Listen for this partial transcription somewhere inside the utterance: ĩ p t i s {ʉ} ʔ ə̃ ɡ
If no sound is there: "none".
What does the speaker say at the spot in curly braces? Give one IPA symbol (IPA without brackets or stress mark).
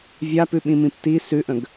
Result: ʉ